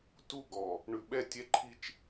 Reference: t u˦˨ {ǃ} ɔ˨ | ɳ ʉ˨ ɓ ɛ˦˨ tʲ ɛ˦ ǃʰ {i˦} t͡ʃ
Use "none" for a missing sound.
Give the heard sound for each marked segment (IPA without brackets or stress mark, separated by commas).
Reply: ɡ, i˦